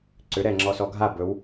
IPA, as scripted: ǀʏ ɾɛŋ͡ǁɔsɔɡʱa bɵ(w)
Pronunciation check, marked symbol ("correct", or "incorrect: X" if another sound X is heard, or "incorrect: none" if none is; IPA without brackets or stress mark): correct